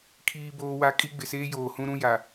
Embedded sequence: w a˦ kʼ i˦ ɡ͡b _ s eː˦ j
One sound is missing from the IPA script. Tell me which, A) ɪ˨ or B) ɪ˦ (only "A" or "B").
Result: A